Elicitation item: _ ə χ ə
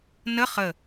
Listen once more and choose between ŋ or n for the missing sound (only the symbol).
n